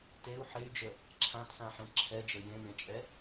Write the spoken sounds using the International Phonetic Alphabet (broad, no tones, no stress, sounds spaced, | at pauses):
t e u̯ ħ e y̯ d͡ʒ ə | ǁʰ ã t s ã ħ ẽ ǁʰ ɛ d͡ʒ ə j ẽ m ẽ t͡ʃʼ ɛ